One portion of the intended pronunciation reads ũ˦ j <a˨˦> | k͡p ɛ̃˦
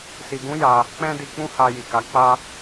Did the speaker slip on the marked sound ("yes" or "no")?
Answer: yes